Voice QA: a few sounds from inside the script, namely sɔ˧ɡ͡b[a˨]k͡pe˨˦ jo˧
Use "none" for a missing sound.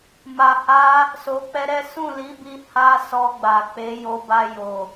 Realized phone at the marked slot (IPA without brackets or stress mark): a˨